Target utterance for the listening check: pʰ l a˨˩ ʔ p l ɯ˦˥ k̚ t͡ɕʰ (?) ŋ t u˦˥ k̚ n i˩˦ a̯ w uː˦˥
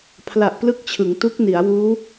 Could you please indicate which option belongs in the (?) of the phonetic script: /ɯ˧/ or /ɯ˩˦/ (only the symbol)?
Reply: ɯ˩˦